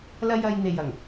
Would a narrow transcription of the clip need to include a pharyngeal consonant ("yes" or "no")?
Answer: no